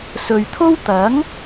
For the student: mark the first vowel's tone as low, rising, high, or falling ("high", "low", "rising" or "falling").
low